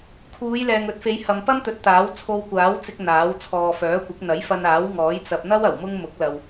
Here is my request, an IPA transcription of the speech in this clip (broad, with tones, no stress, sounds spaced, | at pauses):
kʰ uː˨˧ j l ɛː˨ ŋ ɵ˨˥ t̚ f e˨˧ j h ɐ˨ m p ɐ˥ m t̪ ɵ˨˥ t̚ t̪ aː˨˥ w t͡sʰ o˧ w kʷ aː˨˥ w t͡s ɪ˧ k̚ n̪ aː˨˥ w t͡sʰ ɔː˨ f œː˨˥ kʷ ɪ˨˥ k̚ n̪ ɐ˨˥ j f ɐ˧ n aː˨˥ w ŋ ɔː˨˥ j t͡s ɐ˧ p̚ n̪ ɐ˥ w ɐ˨˩ w m ʊ˥ ŋ m ʊ˨˥ k̚ l ɐ˨ w